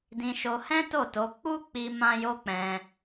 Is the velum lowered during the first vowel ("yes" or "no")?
yes